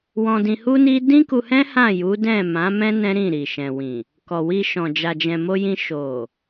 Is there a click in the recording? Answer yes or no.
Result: no